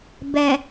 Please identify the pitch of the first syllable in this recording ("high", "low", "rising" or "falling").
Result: low